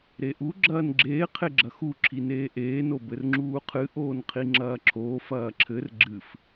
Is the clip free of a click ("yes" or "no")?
no